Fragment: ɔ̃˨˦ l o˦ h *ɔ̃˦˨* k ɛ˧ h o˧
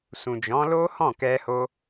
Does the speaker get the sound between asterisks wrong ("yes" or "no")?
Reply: no